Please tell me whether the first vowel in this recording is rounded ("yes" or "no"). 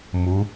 yes